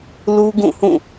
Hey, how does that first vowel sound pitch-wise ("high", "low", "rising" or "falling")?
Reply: high